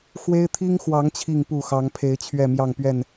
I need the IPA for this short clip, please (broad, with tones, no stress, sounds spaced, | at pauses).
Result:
x w e˦ ɪ̯ t̪ʰ i˦ ŋ x w ɑ˨˦ ŋ t͡ɕʰ i˥˨ ŋ p u˥˨ x ɑ˨˦ ŋ pʰ e˨˦ ɪ̯ t͡ɕʰ ɥ ɛ˥˨ m j ɑ˥˨ ŋ p ɥ ɛ˥˨ n